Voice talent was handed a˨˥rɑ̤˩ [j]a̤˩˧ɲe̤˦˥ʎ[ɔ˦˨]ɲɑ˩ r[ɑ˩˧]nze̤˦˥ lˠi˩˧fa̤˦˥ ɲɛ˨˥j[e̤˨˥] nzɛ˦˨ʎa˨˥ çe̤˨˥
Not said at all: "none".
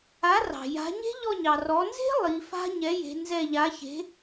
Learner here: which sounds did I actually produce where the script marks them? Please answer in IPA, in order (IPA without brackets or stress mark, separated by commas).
j, ɔ˦˨, ɔ˩˧, e̤˩˧